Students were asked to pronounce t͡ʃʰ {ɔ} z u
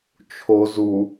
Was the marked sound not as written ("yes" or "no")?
yes